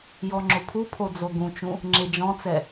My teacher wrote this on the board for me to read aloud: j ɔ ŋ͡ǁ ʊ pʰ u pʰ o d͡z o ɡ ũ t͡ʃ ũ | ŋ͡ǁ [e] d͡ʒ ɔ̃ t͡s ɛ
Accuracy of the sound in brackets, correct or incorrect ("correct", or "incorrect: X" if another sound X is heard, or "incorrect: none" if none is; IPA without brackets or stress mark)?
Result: correct